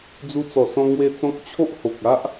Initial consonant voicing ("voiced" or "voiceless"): voiced